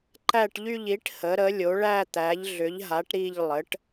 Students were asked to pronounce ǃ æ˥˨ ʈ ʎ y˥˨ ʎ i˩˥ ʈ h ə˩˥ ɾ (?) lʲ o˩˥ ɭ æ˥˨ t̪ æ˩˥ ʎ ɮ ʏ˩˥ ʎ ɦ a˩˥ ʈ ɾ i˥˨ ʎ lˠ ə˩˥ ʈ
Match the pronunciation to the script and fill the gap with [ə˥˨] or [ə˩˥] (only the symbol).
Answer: ə˩˥